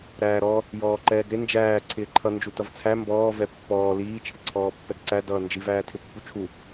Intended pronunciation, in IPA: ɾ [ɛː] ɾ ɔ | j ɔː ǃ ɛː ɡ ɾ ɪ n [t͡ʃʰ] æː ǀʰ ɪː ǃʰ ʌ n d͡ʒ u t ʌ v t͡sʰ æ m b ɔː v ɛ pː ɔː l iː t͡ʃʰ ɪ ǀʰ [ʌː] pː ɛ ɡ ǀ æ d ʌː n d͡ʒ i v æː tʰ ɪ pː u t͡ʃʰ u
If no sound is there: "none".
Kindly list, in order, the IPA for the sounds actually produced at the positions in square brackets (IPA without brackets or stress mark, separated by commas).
æː, d͡ʒ, ɔː